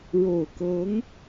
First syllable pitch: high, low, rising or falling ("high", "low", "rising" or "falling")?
low